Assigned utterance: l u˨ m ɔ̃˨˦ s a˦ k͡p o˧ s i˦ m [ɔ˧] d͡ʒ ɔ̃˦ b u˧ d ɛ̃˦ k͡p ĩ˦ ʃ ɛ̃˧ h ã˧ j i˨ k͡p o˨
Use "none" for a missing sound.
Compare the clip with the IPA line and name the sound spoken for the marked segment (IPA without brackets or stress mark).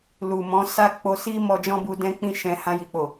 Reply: ɔ˧